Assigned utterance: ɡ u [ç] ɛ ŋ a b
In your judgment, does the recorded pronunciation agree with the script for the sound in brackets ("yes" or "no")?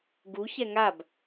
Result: yes